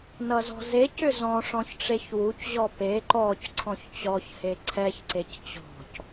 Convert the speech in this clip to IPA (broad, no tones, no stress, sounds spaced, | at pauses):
n ʌ z ɔ̤ z e c ʏ z ɔ̃ ʂ ɔ̃ ç ʈ͡ʂ e ç w u c ʑ ɔ p e ǃ ɔ c ǀʰ ɔ̃ ç t͡ɕ ɔ ç h e ǀʰ ɛ ç ǀ e c t͡ɕ ɔ̤ c